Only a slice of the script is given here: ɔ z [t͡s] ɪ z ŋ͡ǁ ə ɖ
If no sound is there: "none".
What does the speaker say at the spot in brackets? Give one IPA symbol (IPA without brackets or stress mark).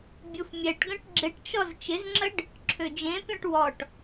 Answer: t͡ʃ